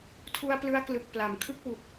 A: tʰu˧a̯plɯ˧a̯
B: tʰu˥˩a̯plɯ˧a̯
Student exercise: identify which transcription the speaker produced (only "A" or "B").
A